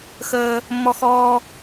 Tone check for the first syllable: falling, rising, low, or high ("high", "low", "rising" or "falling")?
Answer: high